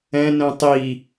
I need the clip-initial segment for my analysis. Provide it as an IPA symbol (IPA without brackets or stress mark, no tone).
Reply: ɛ̃